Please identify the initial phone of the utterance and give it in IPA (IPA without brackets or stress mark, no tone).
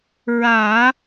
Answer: ɹ